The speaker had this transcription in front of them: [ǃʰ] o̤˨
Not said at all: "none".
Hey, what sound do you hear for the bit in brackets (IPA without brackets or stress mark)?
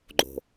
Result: ɡ͡ǃ